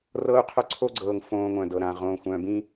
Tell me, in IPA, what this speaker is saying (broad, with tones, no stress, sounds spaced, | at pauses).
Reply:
r ɤ˦ u̯ qʰ œ˦ ǀʰ o˦ ɡ͡ǀ ɤː˨ ŋ f õː˦ ŋʷ œ̃˨ d ɤ˨ ɾ ãː˨ ʁ õː˨ xʷ œ̃ː˨ b ĩː˦